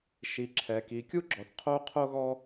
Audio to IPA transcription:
ʃ i˨ ǁʰ ɛ˨ k i˨ kʲ u˥ ɡ͡ǁ ɔ˨ θ qʰ o˥ qʰ o˥ ɣ ɔ˥

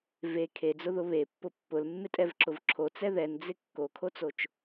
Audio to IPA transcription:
v e kʰ e d͡z ʊ ð ʊ β e pː ʊ pː ʊ l mː ɪ tʼ ɛ v ǁ ʊ v ǁʰ o t͡s ɛ ð ɛ n d͡z ɪ kː o kʰ o t͡s o t͡ʃ

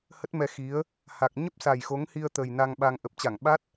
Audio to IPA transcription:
h ə˦˥ t̚ m ɛ˧ x i˨˦ ə̯ | h a˨˩ k̚ ɲ ə˦˥ p̚ s a˨˩ j x o˨˦ ŋ h i˧ ə̯ t̪ ə˨˩ j n a˧ ŋ ɓ a˧ ŋ ʔ ə˨˩ p̚ t͡ɕ a˧˩ ŋ ɓ a˦˥ t̚

